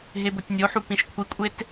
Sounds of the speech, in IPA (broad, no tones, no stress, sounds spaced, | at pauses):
ɦ e b o tʲ nʲ o ħ u p ĩ ʃ kʷʰ i kʷʼ e t